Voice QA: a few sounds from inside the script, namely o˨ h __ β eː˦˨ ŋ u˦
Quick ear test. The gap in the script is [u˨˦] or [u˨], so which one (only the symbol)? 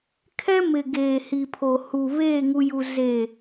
u˨